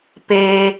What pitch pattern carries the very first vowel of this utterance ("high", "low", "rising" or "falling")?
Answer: low